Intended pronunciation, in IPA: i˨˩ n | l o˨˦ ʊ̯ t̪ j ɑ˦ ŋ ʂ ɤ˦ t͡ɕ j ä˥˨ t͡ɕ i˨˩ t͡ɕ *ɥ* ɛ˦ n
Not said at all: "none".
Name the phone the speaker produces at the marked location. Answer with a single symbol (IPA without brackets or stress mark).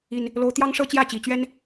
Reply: ɥ